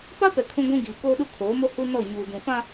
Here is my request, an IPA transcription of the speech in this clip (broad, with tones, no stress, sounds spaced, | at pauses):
p a˦ p ɛ˨ kʰ ũ˦ ɡʷ ũ˦ ɡ iː˨ k oː˦ ɗ u˦ kʰ oː˨˦ m o˦ h u˦ n ɔ˦˨ ɲ uː˨ d ũ˨ f ã˦